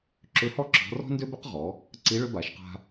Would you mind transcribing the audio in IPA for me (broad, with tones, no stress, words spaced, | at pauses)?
ǁʏ˧˥hɔ˥ ǁɔ̤˧˥ rɔ̤˥ ndø˥bʏ˥q ʁɔ˩˧ | ǀi˧˥ɭʏ˧˥ ba˩˧ʃqa̤˧